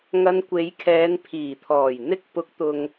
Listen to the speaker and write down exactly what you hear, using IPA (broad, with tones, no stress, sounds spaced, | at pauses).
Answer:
ŋ ɐ˧ n kʷ e˨˧ j kʰ ɛː˨˧ n pʰ iː˨˩ t̪ʰ ɔː˨˩ j n̪ ɪ˥ k̚ p ʊ˨˥ k̚ t̪ ʊ˨ ŋ